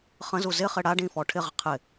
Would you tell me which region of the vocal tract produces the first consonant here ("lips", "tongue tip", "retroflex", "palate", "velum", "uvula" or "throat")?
uvula